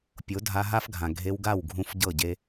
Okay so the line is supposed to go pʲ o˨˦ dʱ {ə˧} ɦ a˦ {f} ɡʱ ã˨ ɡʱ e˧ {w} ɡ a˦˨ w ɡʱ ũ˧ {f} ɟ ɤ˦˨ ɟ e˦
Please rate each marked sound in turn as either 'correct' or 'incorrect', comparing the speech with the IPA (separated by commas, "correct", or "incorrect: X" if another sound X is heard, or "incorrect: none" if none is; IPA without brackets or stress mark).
incorrect: a˧, correct, correct, correct